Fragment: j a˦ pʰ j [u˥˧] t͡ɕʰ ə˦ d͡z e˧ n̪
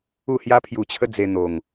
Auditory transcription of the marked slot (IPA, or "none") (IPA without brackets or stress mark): u˧